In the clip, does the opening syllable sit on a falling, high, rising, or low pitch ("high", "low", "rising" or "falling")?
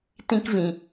high